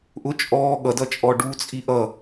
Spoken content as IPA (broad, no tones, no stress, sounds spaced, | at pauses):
ʔ ʊ t͡ʃʼ ɔː ɠ ʌ d ʌ t͡ʃʼ ɔ ɖ u t͡sʼ i ʔ ʌ